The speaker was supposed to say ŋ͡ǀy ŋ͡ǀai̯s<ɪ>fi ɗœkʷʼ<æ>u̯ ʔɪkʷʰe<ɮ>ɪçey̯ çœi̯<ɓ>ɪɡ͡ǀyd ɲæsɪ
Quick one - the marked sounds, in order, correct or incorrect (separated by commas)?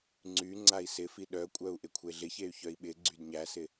correct, incorrect, correct, correct